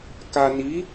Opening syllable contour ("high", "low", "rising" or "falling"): low